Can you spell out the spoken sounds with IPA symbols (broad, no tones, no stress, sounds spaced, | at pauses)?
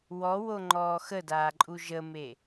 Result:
w ɔ w o ŋ͡ǃ ɔː x ə d aː ǃʼ u ʒ ə m e